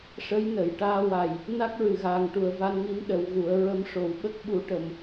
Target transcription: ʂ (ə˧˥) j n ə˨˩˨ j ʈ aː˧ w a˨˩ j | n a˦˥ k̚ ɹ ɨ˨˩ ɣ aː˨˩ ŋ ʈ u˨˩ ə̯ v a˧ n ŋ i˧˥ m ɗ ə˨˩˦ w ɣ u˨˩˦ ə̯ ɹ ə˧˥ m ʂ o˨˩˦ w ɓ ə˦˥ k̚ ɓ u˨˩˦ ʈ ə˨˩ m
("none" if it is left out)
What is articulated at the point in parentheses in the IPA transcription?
ə˧˥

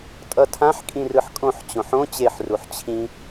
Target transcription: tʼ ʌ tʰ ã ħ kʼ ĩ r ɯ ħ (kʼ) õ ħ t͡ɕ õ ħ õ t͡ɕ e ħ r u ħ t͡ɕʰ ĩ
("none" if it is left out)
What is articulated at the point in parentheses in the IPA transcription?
kʼ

